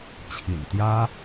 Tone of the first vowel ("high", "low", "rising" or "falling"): low